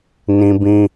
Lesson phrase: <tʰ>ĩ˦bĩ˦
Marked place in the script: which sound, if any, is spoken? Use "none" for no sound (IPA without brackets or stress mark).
n